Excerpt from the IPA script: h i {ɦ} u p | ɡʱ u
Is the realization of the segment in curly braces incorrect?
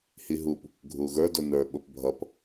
no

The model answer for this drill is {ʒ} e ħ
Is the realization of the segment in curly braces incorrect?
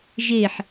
no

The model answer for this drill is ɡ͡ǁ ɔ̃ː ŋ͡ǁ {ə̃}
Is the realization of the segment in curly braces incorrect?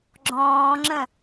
no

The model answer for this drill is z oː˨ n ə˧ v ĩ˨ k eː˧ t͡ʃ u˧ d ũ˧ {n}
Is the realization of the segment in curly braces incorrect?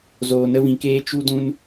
no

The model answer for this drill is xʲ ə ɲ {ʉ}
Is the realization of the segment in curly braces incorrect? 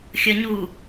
yes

